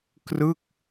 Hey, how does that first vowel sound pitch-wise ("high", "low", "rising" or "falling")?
falling